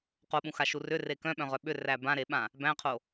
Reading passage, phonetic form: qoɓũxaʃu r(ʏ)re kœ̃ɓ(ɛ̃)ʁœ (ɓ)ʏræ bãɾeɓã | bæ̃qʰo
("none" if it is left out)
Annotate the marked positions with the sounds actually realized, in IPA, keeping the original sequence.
ʏ, œ̃, ɓ

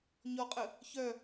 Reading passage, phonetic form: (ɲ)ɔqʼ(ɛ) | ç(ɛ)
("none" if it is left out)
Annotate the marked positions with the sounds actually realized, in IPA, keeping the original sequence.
ɲ, ə, œ

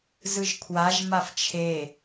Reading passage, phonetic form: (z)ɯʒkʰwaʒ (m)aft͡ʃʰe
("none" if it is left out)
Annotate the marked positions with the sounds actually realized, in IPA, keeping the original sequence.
z, m

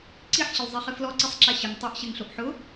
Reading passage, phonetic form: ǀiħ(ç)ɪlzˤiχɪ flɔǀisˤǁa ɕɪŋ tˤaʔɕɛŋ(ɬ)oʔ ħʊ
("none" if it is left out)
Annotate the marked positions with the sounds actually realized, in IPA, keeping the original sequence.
ɕ, ɬ

